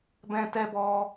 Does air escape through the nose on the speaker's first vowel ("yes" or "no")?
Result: yes